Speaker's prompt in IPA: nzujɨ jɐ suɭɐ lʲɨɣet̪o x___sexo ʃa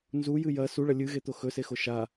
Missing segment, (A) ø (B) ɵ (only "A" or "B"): B